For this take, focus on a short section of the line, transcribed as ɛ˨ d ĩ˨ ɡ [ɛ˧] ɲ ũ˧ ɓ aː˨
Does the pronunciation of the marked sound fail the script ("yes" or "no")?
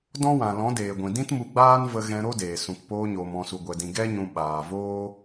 yes